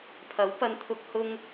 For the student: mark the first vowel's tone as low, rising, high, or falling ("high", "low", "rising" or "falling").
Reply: rising